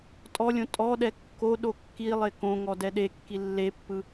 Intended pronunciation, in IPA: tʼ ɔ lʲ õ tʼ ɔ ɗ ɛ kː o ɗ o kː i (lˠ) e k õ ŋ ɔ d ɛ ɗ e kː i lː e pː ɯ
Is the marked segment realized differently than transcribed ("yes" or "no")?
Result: no